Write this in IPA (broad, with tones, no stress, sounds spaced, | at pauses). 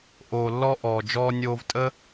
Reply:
ʔ oː˨ lː ɔ˧ ʔ ɔː˨ d͡ʒ ɔː˧ nʲ oː˧ v tʼ ə˦